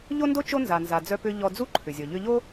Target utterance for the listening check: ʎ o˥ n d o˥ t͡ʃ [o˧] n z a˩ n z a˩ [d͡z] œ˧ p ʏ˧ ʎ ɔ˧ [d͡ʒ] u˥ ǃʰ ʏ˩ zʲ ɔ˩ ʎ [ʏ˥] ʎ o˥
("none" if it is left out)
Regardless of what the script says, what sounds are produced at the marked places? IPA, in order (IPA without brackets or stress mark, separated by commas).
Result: o˥, d͡z, d͡z, ʏ˧